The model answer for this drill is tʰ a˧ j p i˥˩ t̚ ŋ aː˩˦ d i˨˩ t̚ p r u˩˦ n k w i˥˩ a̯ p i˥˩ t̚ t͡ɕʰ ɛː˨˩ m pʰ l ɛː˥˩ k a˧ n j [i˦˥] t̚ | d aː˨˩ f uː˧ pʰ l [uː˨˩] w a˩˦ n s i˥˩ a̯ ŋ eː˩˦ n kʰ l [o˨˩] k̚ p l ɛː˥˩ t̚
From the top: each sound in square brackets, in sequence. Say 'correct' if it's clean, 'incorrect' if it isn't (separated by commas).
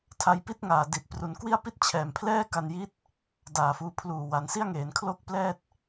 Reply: correct, correct, incorrect